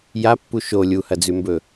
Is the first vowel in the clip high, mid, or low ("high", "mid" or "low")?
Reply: low